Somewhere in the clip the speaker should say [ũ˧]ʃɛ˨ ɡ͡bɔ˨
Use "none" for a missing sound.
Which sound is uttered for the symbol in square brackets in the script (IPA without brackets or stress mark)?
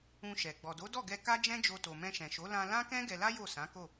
ũ˧